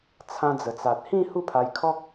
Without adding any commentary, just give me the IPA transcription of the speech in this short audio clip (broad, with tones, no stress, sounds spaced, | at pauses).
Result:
t͡sʰ ã˧ d͡z ə˨˩ t͡s a˨ t̚ h ĩ˥˧ h u˥˧ pʰ a˧ j kʰ ɔ˦ k̚